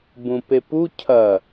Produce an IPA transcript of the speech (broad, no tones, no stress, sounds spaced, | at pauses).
b ũ p e p u cʰ ɐ